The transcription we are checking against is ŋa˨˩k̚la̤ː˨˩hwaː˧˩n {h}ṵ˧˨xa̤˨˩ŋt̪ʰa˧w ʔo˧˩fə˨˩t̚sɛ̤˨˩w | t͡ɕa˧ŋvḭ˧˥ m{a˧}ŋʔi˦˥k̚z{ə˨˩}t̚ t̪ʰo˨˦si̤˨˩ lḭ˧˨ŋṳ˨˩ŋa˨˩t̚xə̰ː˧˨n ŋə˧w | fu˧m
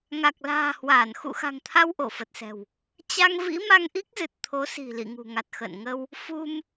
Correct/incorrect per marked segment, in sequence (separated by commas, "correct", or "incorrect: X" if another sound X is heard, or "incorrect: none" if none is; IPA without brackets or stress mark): incorrect: x, correct, incorrect: ɨ˨˩